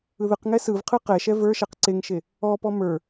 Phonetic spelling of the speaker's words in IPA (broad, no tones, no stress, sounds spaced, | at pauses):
ɯ ð ɯ q ŋ ɛ s ɯ v qʰ ɯ q ɛ ʃ ɛ v ə˞ ʃ ɛ q ǀ e ŋ ʃ e | ɔ p ɔ m ə˞